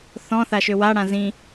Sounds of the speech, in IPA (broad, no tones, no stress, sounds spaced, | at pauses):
θ ɔ̃ θ a ʃ ø w a ɽ ã z ĩ